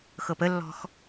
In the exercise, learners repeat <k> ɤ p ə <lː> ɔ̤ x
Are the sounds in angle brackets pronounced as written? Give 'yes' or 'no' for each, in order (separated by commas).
no, yes